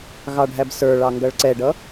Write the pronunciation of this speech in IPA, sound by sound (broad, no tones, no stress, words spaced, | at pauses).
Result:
ɣɑɖʱæbsə˞ɭɑ ŋɡʌɭǀɛɖʌ